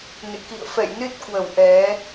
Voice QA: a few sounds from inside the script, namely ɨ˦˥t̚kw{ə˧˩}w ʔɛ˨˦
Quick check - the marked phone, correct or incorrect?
correct